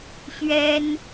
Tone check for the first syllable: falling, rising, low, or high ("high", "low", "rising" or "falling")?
high